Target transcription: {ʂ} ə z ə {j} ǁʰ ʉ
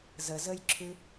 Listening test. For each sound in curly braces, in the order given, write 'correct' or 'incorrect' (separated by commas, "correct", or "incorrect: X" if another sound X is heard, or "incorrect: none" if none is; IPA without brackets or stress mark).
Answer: incorrect: z, correct